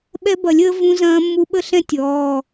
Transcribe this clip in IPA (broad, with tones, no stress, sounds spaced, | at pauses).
ɓ ɛ˦˥ b ɐ˨˩˦ lʲ əː˦˥ v ũ˦˥ z ɐ̃ː˦˥ mː u˦˥ ɓ ə˦˥ ɬ ɛ̃˦˥ tʲ ɔː˩˧˩